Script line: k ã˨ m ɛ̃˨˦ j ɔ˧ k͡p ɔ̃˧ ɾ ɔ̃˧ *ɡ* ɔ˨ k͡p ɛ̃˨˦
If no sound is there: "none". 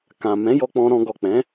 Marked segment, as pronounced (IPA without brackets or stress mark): ɡ